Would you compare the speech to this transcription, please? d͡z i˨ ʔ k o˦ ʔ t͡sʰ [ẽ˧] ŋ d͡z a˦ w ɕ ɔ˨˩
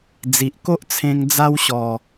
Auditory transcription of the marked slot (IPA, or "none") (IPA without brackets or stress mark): ẽ˧